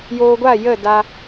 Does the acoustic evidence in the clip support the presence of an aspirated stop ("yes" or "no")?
no